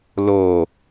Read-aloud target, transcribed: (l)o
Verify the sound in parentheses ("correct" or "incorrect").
correct